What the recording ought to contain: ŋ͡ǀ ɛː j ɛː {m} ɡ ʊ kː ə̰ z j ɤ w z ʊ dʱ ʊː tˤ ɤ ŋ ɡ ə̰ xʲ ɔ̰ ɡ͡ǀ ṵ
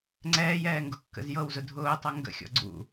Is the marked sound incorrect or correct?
incorrect: ŋ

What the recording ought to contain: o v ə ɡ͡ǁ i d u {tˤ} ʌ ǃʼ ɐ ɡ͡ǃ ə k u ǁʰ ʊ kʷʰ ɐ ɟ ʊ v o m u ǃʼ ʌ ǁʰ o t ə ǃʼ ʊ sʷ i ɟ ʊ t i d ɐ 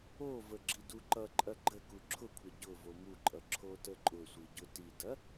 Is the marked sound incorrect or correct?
incorrect: ǃ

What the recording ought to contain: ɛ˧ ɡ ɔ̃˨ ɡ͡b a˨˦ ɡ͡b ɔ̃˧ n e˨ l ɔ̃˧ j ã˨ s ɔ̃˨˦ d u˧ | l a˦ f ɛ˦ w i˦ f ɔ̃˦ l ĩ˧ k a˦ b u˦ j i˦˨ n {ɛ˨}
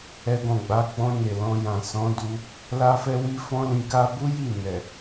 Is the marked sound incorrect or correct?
correct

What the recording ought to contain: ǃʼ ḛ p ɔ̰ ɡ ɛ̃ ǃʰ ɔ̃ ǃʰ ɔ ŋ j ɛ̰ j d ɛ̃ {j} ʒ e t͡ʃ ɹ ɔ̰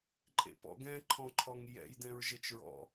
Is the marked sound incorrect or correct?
incorrect: ɹ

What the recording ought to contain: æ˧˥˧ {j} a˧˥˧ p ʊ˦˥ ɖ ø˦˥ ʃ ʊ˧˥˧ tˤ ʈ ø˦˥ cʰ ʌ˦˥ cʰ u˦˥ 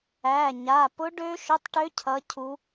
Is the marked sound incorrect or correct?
incorrect: ɲ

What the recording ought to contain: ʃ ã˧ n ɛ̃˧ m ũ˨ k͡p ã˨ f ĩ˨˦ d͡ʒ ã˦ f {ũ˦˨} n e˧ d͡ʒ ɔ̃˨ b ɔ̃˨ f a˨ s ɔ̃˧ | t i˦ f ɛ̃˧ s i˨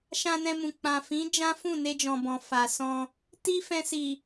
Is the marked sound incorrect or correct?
correct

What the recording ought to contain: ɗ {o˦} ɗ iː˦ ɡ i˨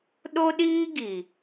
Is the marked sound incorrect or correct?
correct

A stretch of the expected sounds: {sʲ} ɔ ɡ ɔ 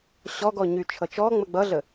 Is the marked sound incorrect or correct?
incorrect: ɕ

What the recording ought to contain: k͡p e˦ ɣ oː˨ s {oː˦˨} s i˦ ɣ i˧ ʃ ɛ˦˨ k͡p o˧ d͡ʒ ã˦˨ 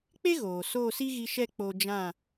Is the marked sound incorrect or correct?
correct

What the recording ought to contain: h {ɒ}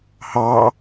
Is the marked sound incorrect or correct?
incorrect: ɑ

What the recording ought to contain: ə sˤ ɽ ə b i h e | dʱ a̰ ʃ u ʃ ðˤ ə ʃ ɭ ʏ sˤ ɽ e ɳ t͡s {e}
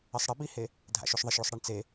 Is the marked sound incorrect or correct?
correct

